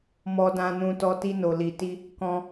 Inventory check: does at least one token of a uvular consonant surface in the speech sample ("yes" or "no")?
no